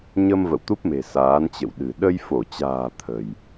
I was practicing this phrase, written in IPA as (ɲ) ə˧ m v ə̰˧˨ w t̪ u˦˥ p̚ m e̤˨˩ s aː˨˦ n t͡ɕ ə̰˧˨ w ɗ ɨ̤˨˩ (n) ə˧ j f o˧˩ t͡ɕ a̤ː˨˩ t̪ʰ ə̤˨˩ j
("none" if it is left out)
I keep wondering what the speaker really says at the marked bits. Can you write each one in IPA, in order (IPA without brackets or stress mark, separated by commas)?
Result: ɲ, ɗ